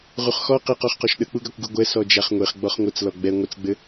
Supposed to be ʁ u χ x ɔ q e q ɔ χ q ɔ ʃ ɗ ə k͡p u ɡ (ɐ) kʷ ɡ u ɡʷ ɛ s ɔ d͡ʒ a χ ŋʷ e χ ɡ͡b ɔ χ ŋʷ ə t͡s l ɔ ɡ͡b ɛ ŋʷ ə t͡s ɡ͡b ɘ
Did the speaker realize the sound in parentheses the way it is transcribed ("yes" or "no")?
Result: no